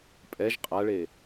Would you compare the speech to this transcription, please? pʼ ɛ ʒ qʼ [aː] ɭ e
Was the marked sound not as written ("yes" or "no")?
yes